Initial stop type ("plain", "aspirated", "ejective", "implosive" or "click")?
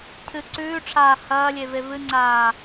aspirated